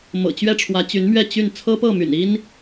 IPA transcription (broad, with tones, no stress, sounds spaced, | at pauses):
m ɤ̰˨˩ t͡ɕ ɥ ɛ˥˩ ʈ͡ʂʰ w ä˧˥ t͡ɕ y˧˥ n m ɥ ɛ˥˧ t͡ɕ y˥˩ n t͡sʰ ɤ˥ p ɤ˥˩ m y̰˨˩ n i˥ n